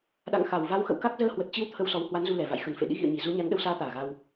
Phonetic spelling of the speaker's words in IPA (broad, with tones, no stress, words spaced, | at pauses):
ɗa̰˧˨ŋ xa˨˩wva˨˦w xə̰˧˨wka˦˥k̚ zəː˧hwə˨˩t̚t͡ɕi˨˦w t̪ʰə˧wsɔ˨˦w hwa˨˦nzu˧lɛ˨˩va̰˧˨j xə˨˩nfḛ˧˨ ɗḭ˧˥ɣḭ˧˨ə̯ɲi˨˩ zu˨˦ɲa˨˦n ɗə˨˦wsaː˨˦t̪aː˨˩ ɣa˧w